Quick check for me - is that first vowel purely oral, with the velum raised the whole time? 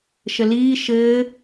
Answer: yes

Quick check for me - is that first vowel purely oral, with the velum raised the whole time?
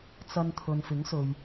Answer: yes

